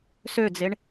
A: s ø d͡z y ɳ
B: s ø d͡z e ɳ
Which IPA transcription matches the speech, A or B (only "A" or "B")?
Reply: B